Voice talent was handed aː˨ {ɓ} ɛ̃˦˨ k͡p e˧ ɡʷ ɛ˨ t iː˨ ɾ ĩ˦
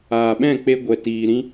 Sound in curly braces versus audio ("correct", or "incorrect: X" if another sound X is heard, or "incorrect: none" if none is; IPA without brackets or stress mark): correct